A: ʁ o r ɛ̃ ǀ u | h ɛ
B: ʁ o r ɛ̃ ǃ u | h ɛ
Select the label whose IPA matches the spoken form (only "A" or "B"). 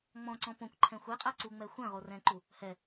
B